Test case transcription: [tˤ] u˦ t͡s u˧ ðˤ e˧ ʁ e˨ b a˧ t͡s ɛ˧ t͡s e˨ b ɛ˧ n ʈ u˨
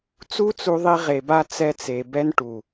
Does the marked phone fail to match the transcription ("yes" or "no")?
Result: yes